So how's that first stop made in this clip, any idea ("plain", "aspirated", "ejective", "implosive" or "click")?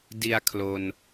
plain